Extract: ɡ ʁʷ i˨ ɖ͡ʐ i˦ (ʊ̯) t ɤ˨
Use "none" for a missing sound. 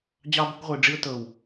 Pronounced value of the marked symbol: ʊ̯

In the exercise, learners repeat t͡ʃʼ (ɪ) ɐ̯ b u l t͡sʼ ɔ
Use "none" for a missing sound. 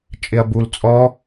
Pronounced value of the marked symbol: ɪ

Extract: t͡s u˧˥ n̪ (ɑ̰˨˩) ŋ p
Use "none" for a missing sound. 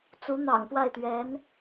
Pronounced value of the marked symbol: ɑ̰˨˩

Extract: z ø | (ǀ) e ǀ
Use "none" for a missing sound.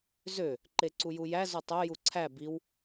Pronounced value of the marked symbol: ǃ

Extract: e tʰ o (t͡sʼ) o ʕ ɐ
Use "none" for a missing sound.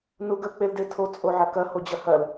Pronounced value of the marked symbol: t͡sʼ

